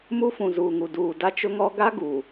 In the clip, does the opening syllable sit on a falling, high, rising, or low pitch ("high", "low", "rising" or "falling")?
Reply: high